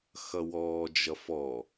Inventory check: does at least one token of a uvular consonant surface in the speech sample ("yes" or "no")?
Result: no